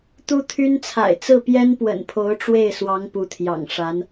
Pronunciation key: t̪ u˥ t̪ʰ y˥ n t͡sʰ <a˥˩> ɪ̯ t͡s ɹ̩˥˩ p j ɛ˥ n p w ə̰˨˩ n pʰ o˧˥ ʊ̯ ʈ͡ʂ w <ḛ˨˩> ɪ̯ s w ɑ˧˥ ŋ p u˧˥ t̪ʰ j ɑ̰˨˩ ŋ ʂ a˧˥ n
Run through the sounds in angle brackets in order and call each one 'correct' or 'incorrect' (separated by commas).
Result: incorrect, incorrect